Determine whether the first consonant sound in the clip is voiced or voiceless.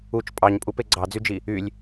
voiceless